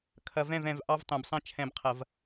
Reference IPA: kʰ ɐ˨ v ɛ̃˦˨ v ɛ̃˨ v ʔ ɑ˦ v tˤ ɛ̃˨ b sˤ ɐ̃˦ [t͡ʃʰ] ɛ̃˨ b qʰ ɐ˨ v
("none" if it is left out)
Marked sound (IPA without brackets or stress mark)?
t͡ʃʰ